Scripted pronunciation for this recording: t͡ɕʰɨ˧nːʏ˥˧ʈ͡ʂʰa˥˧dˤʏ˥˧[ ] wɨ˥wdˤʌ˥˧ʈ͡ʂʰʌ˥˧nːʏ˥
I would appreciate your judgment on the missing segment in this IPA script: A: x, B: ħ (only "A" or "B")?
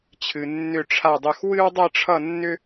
A